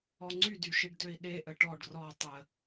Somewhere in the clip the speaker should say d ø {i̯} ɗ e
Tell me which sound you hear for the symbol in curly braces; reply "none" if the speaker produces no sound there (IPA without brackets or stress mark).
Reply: i̯